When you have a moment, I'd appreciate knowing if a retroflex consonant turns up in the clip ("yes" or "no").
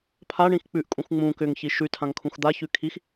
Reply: yes